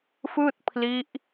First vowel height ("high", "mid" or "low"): high